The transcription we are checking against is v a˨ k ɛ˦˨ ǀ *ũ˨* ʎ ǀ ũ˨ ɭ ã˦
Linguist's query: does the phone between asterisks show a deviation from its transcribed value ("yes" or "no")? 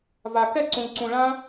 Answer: no